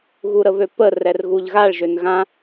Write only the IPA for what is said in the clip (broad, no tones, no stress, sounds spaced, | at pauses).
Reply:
ɣ u ɾ ə β ø p ə r ɛ r ɣ u ʎ ɣ a ɭ ʒ ø n ɣ ã